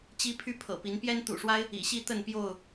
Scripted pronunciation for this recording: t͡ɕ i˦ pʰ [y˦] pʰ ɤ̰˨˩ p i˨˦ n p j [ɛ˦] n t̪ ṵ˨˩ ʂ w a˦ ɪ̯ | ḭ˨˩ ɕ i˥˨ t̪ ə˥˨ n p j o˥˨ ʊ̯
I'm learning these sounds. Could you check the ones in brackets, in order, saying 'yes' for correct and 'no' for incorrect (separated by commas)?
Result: yes, yes